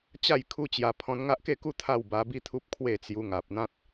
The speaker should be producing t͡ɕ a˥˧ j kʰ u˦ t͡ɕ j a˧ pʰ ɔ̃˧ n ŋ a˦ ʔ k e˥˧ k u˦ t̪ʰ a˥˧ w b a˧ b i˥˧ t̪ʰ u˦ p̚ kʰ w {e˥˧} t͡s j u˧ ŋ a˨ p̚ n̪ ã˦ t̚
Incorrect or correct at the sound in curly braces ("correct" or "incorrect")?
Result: correct